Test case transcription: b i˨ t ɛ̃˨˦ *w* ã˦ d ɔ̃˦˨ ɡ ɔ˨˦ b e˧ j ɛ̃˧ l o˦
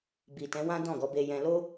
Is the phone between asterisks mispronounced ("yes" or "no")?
no